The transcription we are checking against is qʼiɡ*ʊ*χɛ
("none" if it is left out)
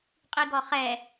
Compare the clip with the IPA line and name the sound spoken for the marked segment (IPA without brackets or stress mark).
ɔ